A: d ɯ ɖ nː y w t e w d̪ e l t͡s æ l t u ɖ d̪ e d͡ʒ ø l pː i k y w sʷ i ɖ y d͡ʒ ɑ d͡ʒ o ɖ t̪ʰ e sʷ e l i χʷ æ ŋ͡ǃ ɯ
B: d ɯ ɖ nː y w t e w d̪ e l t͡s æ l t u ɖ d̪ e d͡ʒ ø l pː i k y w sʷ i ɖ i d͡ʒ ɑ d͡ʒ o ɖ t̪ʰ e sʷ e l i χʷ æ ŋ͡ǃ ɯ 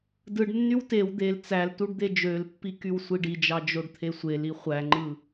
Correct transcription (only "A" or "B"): B